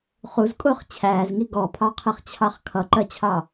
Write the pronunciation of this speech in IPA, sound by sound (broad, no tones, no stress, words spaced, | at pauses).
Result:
χuzkʼʊːχ t͡ɕʰæːzŋi ɡɔpʰɑqʰiχt͡ɕʰɑχ kʰʌǃɜt͡ɕʰɑ